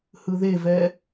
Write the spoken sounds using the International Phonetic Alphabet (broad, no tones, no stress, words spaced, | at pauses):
hɯðevɛ